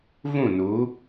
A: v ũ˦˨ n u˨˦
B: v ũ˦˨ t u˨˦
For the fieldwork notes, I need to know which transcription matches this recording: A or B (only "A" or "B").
A